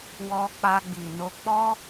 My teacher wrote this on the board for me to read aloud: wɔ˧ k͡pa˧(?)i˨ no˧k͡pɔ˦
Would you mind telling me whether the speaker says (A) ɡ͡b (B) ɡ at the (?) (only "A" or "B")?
A